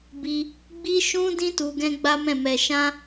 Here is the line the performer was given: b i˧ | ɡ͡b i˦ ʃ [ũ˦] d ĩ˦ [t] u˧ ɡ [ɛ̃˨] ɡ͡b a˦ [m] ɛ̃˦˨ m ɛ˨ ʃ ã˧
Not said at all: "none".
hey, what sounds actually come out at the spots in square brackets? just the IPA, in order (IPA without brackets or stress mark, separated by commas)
ũ˦, t, ɛ̃˦, m